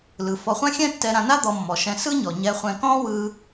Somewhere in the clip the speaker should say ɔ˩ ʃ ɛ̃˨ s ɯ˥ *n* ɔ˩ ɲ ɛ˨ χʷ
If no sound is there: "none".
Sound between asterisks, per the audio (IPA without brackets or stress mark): ɲ